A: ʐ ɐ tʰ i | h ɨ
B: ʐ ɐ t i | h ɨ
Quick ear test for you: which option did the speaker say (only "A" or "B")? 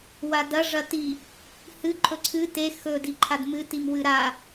B